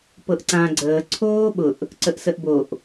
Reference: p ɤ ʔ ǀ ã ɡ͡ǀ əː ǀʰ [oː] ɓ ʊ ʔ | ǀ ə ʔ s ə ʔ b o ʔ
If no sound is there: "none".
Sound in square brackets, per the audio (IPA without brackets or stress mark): oː